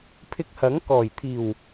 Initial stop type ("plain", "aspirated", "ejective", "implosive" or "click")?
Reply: aspirated